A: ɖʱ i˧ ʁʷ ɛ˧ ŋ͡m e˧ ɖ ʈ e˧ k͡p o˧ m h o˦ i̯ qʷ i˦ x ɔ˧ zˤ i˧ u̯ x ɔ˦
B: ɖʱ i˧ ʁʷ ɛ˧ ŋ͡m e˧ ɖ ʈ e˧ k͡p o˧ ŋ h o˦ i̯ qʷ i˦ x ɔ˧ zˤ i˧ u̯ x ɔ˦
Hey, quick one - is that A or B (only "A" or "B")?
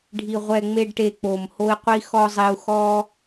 A